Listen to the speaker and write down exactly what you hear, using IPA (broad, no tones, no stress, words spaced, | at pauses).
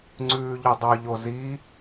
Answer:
ŋ͡ǀʉːʎudˤʉ ʎozi